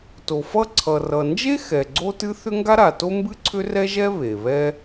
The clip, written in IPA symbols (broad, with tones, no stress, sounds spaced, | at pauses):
t o˩ f ʌ˥ ǀʰ ʌ˩ r ʌ˩ n d͡ʒ e˥ x ɛ˩ ɡ͡ǀ o˥ t ɨ˥ θ ʏ˥ ŋ ɡ a˥ ɾ a˩ t o˥ m b ɨ˥ ǀʰ ʏ˥ r ɛ˥ ʒ ɛ˥ β e˩ β ɛ˥